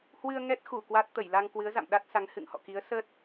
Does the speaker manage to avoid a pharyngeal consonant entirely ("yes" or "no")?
yes